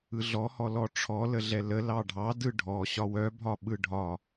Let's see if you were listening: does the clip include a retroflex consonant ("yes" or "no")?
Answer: yes